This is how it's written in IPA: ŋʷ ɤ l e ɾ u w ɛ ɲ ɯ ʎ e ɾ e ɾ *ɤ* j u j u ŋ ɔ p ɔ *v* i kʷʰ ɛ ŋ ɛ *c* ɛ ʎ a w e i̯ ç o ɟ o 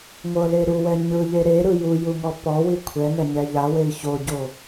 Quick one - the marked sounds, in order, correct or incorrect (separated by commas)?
incorrect, incorrect, incorrect